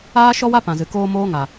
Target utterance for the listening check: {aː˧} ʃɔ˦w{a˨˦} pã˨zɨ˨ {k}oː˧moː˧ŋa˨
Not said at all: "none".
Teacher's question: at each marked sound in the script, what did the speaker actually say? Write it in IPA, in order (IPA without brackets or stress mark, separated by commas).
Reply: aː˦, a˦, k